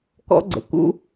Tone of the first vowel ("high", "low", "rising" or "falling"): high